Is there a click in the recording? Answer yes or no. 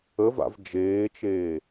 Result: no